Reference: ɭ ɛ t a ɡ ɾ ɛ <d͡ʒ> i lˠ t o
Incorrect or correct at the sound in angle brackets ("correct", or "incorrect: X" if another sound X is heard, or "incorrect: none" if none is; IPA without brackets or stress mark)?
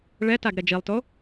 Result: correct